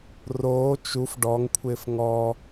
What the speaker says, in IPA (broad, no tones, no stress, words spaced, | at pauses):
roː t͡ʃuf ɖɔŋkʷʰɪːf ŋɔ